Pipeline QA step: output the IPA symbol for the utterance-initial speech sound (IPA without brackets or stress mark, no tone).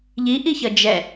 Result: ʎ